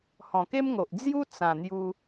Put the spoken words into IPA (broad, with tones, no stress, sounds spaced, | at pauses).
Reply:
h ɔ̃˨˩ k e˦ m ŋ o˨ ʔ d͡z j u˦ t͡s ã˨˩ n̪ j u˧